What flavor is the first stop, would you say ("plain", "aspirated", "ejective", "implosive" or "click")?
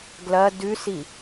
plain